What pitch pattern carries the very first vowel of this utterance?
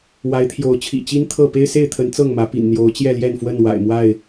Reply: rising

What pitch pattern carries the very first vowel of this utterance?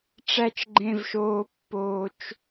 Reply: low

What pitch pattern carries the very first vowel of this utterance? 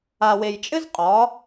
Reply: low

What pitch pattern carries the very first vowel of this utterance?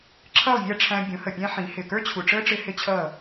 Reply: falling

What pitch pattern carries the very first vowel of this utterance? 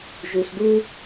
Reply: low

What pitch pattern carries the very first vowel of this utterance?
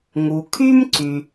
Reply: low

